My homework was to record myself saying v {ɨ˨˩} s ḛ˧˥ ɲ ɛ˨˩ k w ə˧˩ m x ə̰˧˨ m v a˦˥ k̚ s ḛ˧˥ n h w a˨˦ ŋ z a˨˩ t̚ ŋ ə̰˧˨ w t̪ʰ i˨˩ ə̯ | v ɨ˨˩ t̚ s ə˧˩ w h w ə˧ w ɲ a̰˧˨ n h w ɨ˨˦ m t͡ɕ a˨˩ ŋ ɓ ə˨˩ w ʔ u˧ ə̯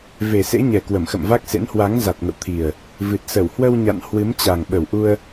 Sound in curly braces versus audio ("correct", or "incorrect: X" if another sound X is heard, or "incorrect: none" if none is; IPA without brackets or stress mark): incorrect: e˨˩